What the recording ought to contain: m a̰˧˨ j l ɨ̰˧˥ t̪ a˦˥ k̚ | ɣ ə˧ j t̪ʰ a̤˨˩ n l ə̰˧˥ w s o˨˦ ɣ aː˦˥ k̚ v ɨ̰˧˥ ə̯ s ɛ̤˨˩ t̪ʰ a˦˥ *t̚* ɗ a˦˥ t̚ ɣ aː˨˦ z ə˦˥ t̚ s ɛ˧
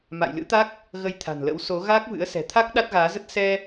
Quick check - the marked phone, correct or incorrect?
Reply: incorrect